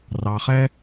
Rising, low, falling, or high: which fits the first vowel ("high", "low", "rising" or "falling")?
low